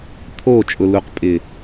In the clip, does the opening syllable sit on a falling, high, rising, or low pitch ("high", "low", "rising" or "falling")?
falling